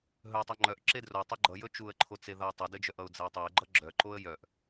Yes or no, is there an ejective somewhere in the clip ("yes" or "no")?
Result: no